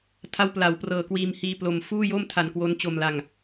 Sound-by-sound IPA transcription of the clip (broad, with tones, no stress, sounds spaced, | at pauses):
tʰ a˦˥ w p l a˩˦ w p r ɤː˨˩ k w iː˧ m h iː˦˥ p l o˧ m f uː˥˩ j o˥˩ m tʰ a˧ n k w o˦˥ n t͡ɕ o˧ m l a˧ ŋ